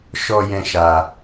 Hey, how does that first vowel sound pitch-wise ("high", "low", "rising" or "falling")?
high